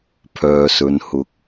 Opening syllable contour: low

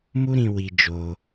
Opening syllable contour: high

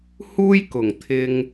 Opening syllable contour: high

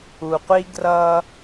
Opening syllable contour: low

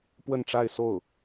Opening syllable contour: falling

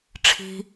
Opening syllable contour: low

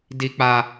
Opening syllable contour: low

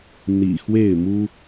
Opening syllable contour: low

